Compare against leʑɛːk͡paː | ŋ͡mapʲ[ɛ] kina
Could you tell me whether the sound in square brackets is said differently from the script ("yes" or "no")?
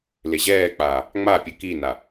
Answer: yes